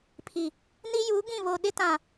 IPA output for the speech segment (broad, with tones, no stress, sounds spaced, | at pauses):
pʰ i˨ | n i˦ j u˨˦ ɡ ĩ˦˨ β o˨ ɗ ɪ˦ t ã˨